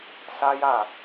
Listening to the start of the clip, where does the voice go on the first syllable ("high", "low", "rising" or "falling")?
high